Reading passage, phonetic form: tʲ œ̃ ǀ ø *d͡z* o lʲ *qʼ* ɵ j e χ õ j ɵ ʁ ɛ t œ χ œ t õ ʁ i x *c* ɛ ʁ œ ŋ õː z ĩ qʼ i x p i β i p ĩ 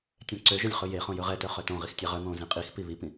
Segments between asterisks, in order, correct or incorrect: incorrect: ʒ, incorrect: χ, incorrect: tʲ

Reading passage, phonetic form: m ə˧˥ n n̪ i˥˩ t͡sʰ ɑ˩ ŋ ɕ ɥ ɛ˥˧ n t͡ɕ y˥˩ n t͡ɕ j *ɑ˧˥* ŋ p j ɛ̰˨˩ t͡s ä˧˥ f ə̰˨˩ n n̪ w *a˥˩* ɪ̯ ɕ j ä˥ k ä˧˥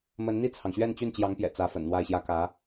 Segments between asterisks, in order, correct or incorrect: correct, correct

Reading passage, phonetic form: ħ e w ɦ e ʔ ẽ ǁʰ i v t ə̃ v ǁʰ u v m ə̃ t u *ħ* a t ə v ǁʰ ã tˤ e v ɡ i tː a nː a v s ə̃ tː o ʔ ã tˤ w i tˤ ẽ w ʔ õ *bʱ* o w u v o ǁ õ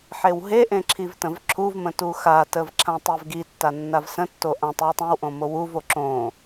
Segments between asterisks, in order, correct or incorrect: incorrect: x, incorrect: m

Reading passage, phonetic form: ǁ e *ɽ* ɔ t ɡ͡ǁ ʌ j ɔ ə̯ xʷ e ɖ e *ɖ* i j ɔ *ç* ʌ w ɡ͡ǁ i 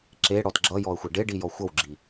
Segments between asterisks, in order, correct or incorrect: correct, correct, incorrect: xʷ

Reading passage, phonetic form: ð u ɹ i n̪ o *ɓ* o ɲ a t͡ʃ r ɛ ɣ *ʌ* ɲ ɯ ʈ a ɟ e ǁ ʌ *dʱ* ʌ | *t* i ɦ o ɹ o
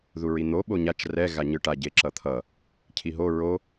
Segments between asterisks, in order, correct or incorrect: correct, incorrect: a, incorrect: t̪ʰ, incorrect: cʰ

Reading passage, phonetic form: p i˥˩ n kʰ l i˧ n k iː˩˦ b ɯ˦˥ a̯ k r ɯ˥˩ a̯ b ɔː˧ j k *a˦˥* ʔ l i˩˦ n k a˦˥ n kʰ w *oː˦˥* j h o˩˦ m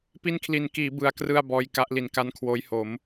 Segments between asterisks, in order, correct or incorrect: correct, correct

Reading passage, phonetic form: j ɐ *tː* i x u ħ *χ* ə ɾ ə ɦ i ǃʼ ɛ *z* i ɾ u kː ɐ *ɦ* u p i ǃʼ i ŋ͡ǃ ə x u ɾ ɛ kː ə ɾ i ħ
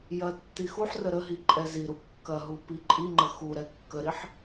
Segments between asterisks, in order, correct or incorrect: correct, incorrect: r, correct, correct

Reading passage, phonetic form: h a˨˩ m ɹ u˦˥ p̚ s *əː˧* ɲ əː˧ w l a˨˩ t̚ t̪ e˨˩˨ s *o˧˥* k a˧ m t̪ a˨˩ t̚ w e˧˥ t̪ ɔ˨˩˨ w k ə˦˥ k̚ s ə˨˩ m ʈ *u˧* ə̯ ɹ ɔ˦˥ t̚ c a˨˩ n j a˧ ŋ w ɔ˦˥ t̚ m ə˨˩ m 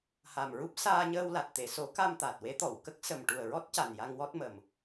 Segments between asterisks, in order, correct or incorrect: incorrect: aː˧, incorrect: o˨˩˦, incorrect: u˨˩

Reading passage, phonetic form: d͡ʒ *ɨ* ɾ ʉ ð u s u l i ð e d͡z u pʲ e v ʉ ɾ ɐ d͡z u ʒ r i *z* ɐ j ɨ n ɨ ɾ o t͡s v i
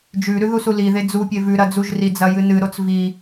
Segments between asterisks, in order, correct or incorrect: incorrect: ʉ, incorrect: d͡z

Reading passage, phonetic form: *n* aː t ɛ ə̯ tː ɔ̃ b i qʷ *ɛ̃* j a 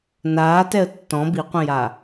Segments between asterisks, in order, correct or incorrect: correct, correct

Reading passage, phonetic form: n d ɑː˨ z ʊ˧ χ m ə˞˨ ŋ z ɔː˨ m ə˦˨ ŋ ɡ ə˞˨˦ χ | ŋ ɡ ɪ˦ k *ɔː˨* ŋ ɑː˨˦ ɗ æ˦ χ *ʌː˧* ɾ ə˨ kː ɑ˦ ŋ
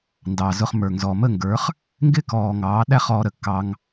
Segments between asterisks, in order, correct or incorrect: correct, incorrect: ɔː˧

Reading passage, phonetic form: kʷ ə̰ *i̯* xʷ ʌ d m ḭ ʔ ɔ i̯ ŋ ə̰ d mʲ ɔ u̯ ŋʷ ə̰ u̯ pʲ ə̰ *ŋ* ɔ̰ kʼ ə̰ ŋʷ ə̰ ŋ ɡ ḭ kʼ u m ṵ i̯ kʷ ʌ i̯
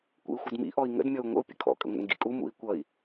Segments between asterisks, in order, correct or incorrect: correct, incorrect: kʰ

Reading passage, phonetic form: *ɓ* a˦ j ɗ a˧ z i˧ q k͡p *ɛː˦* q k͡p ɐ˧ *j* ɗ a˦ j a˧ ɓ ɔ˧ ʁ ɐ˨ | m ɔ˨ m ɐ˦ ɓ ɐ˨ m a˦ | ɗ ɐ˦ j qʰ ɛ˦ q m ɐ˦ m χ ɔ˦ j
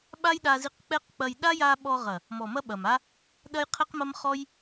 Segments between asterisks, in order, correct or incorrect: correct, incorrect: ɛ˦, correct

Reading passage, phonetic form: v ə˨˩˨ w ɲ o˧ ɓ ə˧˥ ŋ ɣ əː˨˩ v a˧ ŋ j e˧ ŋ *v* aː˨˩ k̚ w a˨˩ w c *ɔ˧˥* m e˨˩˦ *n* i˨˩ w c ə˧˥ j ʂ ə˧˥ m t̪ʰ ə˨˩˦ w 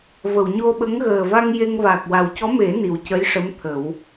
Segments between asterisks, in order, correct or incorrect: correct, correct, correct

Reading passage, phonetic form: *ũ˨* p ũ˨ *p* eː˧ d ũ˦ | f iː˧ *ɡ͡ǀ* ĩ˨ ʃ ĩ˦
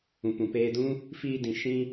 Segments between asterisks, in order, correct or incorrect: correct, correct, incorrect: d

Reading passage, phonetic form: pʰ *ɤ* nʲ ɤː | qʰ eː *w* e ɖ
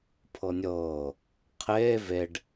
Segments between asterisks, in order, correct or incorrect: correct, incorrect: v

